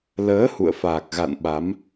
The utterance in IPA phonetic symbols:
l əː˨˦ h ṵ˧˨ ə̯ f aː˨˩ k̚ ɣ a̰˧˨ n ɓ a˨˦ m

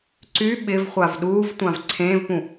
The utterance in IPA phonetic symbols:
ǀ y ɓ ɪ v χʷ a v ɗ uː v tʷ ã v ǀʰ ẽː v p ũ

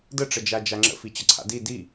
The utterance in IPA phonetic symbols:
d ə ʈ͡ʂ ə d͡ʒ a d͡ʒ a ŋ͡ǁ ə̰ f i t͡ɕ ə ǀʰ a̰ d i d i

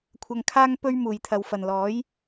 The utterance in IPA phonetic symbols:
kʷʰ ɐ˧ ŋ kʰ aː˥ ŋ p ɵ˥ ɥ m uː˨ j t̪ʰ ɐ˨ w f ɐ˨ n l ɔː˨˥ j

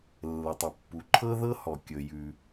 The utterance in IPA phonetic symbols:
lː ə˩ tˤ i˩ pː u˩ ǃʰ ɤ˥ ð ɤ˥ h ɔ˩ kʲ ɵ˩ j ʉ˩

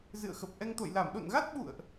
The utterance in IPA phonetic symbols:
z ɨ̰˧˨ ə̯ x ə˨˩ p̚ ʔ ɛ˧ ŋ t̪ o̰˧˨ j l a˧˩ m ɗ o̰˧˨ n ɣ a˦˥ t̚ ɓ ṵ˧˨ ə̯ ʔ

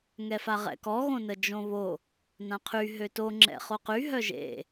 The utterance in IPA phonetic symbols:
ŋ ɛ f a ʁ ɛ̰ k ɔ ɣ õ n ə d͡ʒ õ β o | n ã qʰ y ɦ ø t o ŋ͡ǁ ɛ̰ χ o q y ɦ œ ʒ ḛ

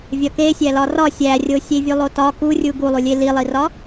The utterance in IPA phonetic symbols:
vʲ ɒ k e sʲ æ l ɒ r ɒ sʲ æ rʲ o sʲ e vʲ u lˠ o t ɒ k u rʲ u ɡ u lˠ u lʲ e l i lˠ i r ɒ

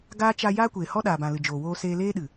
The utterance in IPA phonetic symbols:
ɡ aː˦ t͡ʃ a˧ j aː˦ kʷ eː˨ h ɔ˦ ɗ aː˨ b ã˨ l ɨ˨ d͡ʒ oː˨ w oː˧ s eː˧ l eː˦ ɗ ɨ˨

